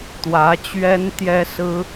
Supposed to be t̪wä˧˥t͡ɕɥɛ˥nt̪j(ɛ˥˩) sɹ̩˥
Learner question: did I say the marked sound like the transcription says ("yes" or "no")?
no